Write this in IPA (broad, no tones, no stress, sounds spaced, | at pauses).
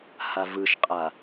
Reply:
h a v ɯ ʃ qʼ a